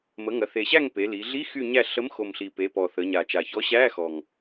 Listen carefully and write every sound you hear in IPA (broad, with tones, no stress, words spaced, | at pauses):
mə˩˧ ŋɐ˩˧θe˨˩ɕæ˦˨ŋ pe˩˧ li˩˧ɮi˧˥˧ xy˦˨ɲæ˦˨ ɬə˨˥mxo˨˩m ɬi˨˩pe˩˧ pɔ˨˩θə˩˧ɲa˨˩t͡ʃa˨˩ çɔ˨˥ɕæ˧˥˧xɔ˨˩ŋ